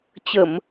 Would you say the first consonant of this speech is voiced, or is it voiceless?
voiceless